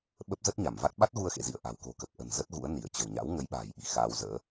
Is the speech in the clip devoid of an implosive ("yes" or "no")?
no